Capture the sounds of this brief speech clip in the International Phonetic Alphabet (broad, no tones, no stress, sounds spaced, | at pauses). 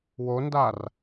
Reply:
w o n d a r